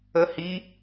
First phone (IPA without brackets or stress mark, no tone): ə